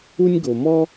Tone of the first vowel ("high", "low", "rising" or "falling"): high